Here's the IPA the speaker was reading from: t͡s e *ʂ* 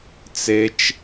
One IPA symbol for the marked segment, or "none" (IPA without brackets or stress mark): t͡ʃ